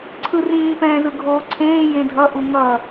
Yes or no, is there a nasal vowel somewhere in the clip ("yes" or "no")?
yes